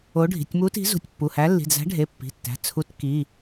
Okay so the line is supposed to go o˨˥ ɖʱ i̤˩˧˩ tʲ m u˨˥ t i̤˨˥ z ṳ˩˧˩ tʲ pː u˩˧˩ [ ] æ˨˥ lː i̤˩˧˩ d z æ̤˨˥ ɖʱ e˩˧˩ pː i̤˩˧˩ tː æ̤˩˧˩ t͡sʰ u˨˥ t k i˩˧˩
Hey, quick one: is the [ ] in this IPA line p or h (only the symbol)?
h